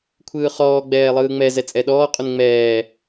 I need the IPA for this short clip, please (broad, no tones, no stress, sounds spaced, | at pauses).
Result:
kʷʰ ɯː χ ɔː ɡ͡b ɛː lˠ ɯː ŋ͡m ɛ z ɛ t͡sʼ ɛ ɗ ɔː qʼ u n ŋ͡m ɛː